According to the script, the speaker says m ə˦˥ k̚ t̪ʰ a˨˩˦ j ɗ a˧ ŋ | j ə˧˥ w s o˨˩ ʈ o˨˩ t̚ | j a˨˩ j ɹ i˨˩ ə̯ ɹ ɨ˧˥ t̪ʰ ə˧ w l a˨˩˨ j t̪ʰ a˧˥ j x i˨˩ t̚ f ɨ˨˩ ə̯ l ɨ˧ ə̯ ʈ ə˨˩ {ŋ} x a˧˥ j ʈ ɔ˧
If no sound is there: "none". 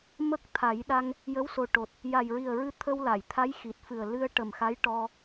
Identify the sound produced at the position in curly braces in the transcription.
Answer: m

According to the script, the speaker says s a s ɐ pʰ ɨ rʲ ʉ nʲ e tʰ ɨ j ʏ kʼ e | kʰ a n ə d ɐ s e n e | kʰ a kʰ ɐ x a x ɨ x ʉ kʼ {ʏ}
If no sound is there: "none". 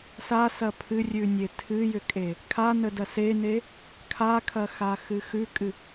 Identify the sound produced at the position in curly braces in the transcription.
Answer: ɨ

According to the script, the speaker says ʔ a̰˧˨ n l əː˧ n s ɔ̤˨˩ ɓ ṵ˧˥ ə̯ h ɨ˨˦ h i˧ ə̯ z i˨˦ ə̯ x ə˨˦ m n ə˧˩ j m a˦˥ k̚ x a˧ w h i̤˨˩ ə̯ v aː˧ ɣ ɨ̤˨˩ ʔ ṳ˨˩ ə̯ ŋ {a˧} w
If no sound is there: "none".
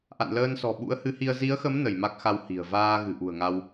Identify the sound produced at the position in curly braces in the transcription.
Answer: a˧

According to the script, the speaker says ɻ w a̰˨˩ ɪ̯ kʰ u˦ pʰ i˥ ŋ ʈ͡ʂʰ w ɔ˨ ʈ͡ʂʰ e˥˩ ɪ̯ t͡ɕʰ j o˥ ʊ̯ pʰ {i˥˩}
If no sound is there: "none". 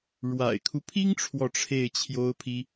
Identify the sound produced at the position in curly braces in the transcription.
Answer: i˥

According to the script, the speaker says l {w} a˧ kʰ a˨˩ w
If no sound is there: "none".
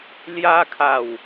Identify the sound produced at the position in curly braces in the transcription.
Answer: j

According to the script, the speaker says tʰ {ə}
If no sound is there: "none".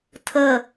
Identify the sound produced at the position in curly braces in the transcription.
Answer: ə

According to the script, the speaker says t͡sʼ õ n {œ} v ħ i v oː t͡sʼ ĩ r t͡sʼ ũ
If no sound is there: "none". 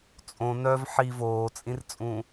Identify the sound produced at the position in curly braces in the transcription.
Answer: œ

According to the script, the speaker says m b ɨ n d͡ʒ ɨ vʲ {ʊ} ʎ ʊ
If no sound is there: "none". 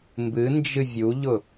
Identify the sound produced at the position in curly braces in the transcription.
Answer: u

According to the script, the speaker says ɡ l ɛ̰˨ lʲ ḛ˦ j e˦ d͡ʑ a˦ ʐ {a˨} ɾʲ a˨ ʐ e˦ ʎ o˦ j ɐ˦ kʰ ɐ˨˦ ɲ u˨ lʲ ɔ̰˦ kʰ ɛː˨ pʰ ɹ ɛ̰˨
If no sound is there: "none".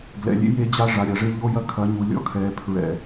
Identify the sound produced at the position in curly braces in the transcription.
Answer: a˨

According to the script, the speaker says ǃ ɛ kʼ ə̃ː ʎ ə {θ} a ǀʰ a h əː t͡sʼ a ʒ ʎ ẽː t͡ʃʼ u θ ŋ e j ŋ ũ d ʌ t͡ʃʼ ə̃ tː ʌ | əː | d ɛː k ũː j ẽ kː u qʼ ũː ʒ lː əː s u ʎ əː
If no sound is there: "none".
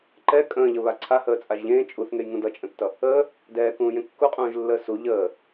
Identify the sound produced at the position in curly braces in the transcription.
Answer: β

